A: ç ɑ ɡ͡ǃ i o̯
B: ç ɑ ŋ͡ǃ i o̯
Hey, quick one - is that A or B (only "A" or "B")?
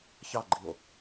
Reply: A